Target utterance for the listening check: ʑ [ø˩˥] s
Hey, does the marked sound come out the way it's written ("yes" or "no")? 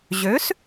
yes